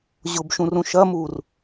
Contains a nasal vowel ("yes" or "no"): yes